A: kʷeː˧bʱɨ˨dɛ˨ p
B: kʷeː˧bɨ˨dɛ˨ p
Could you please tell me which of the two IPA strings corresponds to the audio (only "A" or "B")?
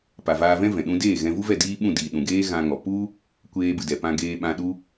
B